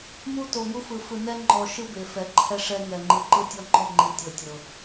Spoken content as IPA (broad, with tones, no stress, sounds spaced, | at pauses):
m u˦ t o˨ ŋ u˦ f ɯ˨ f ɯ˨ n ɛ˦ ŋ͡ǃ ɔ˨ ʃ ɯ˦ b e˨ f ɛ˨ ǃʰ ɛ˦ ʂ ɛ˦ ŋ ɛ˨ ŋ͡ǃ ɯ˨ ǃ ɯ˦ tʲ ɔ˦ ŋ͡ǃ ɔ˦˨ ŋ͡ǃ i˨ tʲ ɤ˨ tʲ ɤ˨